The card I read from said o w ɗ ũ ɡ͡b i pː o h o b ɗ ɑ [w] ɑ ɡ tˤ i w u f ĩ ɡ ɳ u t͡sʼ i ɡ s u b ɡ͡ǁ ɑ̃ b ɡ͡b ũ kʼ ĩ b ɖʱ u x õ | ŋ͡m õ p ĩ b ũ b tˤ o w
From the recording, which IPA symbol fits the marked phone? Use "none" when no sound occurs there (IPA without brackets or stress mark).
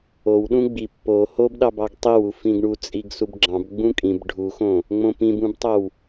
b